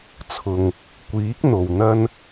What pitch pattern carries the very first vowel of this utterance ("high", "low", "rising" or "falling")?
low